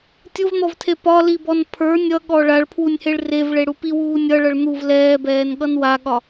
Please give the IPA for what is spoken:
tʲʊvn̪ɔvtʰe pɒlibɔn pʰə˞ nʲʌɠɔ ɭaɭpʰwunʲheɭ revɭeɽu piwuː nʲʌɭʌɭ n̪uv lɛːbɛːnɠʌn waɠɒ

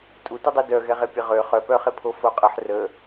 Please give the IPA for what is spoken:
tʼutədˤu dœɣɛʁe pʲəʁø χœpœχe pʰofoqʼəħ rə

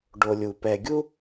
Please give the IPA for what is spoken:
ɖo˨lʲu˩ pɛ˨ɡʲu˥

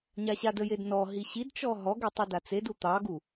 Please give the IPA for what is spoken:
ɲaɕadəjed nɔɦi ɕidt͡ʃɔ ɦɔɡe tˤidat͡sedu t̪ɑɡu

